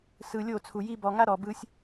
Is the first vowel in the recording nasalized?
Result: no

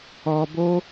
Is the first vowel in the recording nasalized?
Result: no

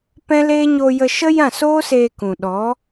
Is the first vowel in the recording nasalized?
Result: yes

